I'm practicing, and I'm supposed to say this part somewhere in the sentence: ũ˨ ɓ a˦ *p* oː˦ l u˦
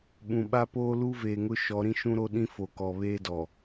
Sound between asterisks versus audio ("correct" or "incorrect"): correct